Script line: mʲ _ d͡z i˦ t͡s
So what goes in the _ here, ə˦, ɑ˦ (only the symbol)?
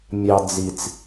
ɑ˦